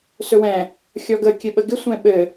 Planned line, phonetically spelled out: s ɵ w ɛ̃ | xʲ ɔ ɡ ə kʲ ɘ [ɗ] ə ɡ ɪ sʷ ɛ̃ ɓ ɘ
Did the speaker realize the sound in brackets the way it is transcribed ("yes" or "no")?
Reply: no